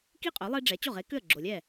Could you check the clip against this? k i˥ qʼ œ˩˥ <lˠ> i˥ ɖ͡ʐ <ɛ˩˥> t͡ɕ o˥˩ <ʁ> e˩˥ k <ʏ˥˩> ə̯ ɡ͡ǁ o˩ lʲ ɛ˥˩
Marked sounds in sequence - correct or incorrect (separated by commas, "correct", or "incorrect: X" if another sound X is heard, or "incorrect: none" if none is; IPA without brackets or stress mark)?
correct, correct, correct, correct